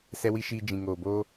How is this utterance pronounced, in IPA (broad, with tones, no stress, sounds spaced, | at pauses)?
s ɛ˧ w i˧ ʃ iː˧ d͡ʒ ĩ˨ ŋ oː˨ b o˧